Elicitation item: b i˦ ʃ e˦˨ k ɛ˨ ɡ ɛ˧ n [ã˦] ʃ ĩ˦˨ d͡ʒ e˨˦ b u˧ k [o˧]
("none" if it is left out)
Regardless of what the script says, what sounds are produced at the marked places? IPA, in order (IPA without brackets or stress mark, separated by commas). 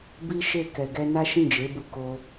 a˦, o˧